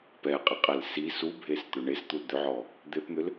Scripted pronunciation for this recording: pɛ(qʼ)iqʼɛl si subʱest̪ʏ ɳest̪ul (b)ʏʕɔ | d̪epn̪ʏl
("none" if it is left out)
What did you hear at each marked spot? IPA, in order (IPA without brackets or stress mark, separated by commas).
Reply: qʼ, d̪